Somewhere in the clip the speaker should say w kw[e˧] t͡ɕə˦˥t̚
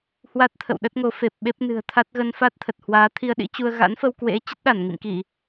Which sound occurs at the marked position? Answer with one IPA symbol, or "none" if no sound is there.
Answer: ḛ˧˥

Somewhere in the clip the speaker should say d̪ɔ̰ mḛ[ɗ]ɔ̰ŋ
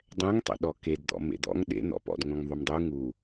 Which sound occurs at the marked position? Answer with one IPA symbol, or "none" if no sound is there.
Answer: d̪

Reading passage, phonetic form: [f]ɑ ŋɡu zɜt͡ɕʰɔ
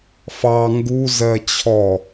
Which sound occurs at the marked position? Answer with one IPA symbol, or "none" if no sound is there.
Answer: f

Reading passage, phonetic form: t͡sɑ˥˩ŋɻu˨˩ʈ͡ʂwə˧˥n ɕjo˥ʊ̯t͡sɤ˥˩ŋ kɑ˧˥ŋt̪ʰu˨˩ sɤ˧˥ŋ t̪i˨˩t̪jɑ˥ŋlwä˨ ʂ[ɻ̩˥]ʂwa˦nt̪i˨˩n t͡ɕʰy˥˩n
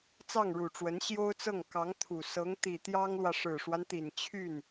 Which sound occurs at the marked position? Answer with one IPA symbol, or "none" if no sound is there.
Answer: ɻ̩˨˩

